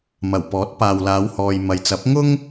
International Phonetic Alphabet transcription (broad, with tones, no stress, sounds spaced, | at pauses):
m ɐ˨˩ w p ɔː˨˥ t̚ p aː˨ w l aː˨˧ w h ɔː˨ j m ɐ˨ j t͡s ɐ˨˥ p̚ ŋ ʊ˥ ŋ